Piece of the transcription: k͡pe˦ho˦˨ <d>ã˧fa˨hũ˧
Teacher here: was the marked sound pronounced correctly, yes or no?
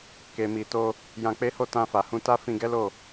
no